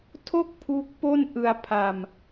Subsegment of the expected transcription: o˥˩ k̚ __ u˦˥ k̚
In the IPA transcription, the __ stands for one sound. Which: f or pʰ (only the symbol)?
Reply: pʰ